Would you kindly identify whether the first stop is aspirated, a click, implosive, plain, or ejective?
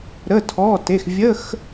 aspirated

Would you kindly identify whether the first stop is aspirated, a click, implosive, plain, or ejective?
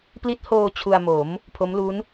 plain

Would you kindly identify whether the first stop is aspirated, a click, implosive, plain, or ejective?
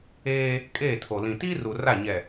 ejective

